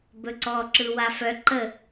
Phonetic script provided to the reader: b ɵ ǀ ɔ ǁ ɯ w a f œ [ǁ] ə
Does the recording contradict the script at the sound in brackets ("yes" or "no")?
yes